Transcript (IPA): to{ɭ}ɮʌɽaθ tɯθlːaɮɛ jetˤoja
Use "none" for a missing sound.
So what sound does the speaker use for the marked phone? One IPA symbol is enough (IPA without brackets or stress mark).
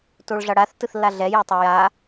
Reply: ɭ